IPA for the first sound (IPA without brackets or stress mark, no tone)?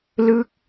l